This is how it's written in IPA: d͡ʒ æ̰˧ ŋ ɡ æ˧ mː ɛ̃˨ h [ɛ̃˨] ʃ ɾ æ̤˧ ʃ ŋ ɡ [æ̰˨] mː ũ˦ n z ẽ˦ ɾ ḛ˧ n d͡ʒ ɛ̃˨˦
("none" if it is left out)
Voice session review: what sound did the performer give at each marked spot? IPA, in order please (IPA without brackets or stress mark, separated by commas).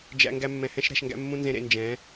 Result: ɛ̃˦, æ̰˦